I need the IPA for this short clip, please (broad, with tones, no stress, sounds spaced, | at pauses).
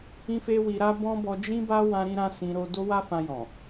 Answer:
ĩ˦ f e˦ w i˧ ɾ a˦ b ɔ̃˦ b ɔ˧ d͡ʒ ĩ˦ b a˦ w ã˦ ɾ ĩ˦ ɾ ã˦ s ĩ˧ ɾ o˧ d o˦ w a˦ f ã˧ j ɔ̃˨